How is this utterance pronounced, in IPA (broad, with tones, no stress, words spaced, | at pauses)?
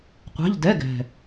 qʷɛ̤˧˥˧ʎ dɛ˧˥˧ɡɛ̤˨˩